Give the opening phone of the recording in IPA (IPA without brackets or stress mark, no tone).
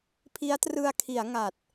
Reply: pʰ